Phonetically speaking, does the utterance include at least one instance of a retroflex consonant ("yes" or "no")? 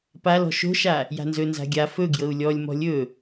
no